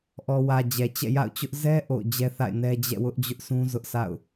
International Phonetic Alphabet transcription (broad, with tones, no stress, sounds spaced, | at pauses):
ʔ ɔ˨ w ä˨ d͡ʑ ɛ˨ t͡ɕ ɛ̰˦˨ j a̰˦˨ ʊ̯ t͡ɕ ʊ˦ ʔ z ɛ˦ ʔ o̰˦˨ ʊ̯ d͡ʑ ɛ˦ θ a̰˦˨ ɪ̯ n ɛ˦ d͡ʑ ɛ̰˦˨ w ʊ˦ ʔ d͡ʑ ʊ˦ ʔ sʰ ũ˦ z ʊ˦ ʔ sʰ a̰˦˨ ʊ̯